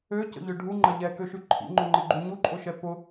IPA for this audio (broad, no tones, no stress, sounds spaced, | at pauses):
ø c ə̰ ʎ ʏ ɖʱ u ŋ͡ǃ ɐ ʎ ɛ k ø ʃ y ǃʰ ḭ ŋ͡ǃ ʊ ŋ͡ǃ ɪ ɡ͡ǃ y ɲ u ǃʼ ʊ ʃ ɛ p ʊ